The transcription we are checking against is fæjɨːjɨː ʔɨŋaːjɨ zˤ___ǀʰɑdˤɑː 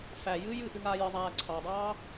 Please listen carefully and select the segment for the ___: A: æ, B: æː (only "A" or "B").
B